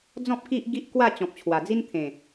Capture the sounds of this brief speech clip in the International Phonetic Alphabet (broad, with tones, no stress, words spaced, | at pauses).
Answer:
d͡zɔ̃˦p̚ ki˦ʔɡi˦ʔkwa˥˧ t͡ɕɔ̃˨p̚t͡ɕʰwa˨˩d͡zi˦n t̪ʰẽ˨˩